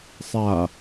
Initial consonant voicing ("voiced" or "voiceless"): voiceless